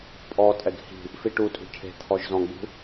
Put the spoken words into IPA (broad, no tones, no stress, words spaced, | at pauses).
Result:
pʼɔtʼɛɡ hi̤ | fiʈutʼṳ cʰe̤ t̪ʰɔʒzɔ̃ɡ͡bṳ